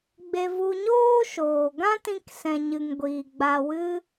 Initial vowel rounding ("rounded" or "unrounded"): unrounded